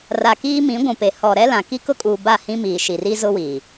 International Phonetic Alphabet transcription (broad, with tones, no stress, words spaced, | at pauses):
ra˨ kiː˦mĩ˨˦ɡʷũ˨pe˨ hɔ˨ɾɛ˦lã˨ ki˦kʊ˦ kʼuː˨ ba˦˨hĩ˦miː˨ ʃi˨ri˦zʊ˦wiː˨